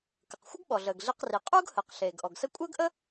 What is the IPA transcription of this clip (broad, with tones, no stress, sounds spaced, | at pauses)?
k ə˩ q xʷ ə˥ ɡ ɓ ɔ˩ ɮ əː˩ ɡ ɮ i˧ q r i˩ qʼ uː˥ ɡ h əː˩ q ɬ eː˩ ɡ ʔ ɔ˩ ɡ s ə˥ kʷʼ əː˥ ɡ ʔ ə˥